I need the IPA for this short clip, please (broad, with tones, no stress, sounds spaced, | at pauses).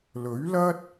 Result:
l ɵ˨˥ ɥ l ɐ˥ t̚